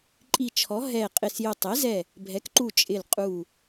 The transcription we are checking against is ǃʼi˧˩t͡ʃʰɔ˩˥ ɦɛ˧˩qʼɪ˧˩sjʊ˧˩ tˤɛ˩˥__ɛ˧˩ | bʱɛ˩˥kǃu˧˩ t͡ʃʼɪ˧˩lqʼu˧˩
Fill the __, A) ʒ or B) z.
B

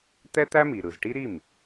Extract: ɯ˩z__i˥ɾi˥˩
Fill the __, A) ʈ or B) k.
A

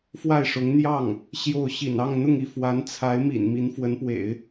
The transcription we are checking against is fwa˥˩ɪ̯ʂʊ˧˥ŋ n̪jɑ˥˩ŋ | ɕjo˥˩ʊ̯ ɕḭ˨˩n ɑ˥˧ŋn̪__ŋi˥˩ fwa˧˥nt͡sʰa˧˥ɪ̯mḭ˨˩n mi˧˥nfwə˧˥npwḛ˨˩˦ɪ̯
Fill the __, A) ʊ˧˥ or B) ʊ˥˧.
B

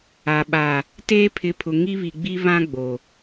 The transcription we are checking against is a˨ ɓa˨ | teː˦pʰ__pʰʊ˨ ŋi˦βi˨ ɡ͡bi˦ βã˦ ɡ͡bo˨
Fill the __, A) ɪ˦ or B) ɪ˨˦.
B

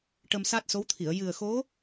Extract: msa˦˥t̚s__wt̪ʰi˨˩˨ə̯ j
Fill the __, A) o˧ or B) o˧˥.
B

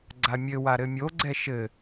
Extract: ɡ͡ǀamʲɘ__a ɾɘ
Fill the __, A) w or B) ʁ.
A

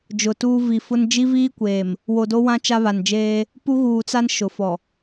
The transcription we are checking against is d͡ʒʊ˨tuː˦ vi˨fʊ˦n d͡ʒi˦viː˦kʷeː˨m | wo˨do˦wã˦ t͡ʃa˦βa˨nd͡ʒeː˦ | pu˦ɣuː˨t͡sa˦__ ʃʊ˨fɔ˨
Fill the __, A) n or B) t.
A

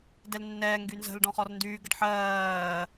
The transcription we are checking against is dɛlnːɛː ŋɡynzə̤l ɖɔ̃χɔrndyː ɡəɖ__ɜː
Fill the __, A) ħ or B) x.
A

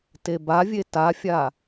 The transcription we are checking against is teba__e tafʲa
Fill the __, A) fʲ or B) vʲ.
B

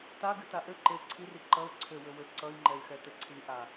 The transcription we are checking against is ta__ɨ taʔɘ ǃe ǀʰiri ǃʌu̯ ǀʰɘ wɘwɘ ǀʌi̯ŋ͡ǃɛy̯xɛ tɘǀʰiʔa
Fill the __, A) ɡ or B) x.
A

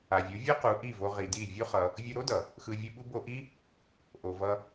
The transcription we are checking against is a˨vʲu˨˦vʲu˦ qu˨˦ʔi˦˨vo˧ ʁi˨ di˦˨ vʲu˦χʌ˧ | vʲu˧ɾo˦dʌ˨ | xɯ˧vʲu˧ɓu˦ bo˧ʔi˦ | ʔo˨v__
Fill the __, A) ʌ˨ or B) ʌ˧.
B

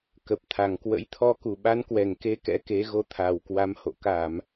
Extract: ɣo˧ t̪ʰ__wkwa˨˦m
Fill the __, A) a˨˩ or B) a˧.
A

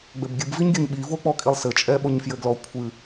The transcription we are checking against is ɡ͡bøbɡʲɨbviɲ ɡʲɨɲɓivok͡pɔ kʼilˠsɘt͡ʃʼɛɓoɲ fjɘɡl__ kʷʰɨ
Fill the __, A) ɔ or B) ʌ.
A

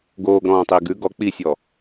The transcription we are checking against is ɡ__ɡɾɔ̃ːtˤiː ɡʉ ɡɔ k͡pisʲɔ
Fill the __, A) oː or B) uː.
A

